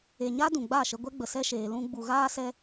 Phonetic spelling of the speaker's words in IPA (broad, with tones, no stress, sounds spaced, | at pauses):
e˨ ɲ a˦ d ũ˨ ɡ͡b a˦˨ ʃ ə˧ ɡʷ ɛ˦ ɡ͡b ə˨ s ɛ˧ ʃ eː˨ l ũ˧ ɡ͡b u˨ ɣ aː˦ s ɛ˦